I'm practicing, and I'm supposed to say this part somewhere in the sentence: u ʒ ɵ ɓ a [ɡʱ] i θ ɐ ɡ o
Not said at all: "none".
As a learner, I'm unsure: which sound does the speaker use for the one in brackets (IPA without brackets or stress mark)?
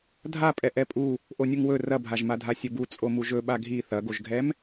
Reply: ɡʱ